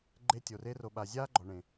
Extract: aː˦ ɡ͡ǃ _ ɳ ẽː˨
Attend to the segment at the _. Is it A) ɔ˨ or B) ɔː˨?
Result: A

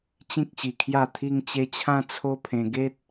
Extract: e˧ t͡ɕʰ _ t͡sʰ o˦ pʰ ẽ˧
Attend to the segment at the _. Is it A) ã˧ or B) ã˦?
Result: A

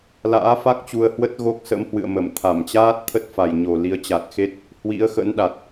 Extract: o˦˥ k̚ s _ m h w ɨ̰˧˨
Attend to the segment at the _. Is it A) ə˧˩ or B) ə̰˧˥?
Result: B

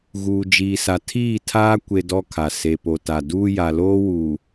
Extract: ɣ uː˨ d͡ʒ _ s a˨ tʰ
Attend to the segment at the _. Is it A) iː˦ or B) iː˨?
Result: B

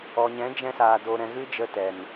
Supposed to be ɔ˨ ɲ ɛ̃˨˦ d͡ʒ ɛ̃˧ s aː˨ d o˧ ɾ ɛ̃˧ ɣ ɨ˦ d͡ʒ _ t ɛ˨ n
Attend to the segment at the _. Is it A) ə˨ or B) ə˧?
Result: B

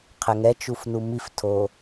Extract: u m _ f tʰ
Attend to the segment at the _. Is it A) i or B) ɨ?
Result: A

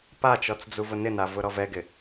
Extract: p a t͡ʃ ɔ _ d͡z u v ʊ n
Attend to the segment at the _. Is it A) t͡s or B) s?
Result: A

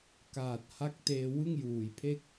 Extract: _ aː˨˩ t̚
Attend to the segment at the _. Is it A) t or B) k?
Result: B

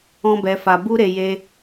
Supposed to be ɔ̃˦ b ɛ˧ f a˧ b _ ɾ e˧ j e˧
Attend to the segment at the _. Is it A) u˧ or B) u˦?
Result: B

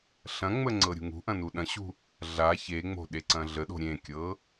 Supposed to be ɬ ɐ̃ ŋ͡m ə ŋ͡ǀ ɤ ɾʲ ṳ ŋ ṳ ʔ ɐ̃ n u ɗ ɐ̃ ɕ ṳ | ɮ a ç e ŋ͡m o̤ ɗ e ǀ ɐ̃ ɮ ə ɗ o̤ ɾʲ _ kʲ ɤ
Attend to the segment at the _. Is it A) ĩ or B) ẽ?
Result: B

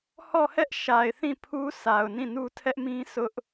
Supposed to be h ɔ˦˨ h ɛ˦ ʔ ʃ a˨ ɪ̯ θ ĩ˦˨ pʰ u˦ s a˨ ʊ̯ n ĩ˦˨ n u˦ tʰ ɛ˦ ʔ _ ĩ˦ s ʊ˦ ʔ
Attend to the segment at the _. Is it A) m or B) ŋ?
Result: A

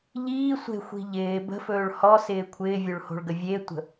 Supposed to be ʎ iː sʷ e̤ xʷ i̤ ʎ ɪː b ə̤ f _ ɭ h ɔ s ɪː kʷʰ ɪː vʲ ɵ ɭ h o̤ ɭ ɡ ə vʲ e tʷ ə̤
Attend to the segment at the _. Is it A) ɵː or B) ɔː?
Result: A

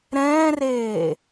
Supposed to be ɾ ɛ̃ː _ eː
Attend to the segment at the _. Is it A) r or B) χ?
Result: A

